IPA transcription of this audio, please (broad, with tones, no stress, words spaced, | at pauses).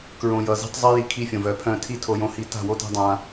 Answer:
kɹõ˨jʌ˨zi̤˦tˤ zˤi˦ji˨ kʰi˦fʲõ˨vœ˨pʰœ̃˦˨ tʰi˦tʰo˨jõ˨hi˨ ta̤˦˨wo˦ta̤˦ dˤã˦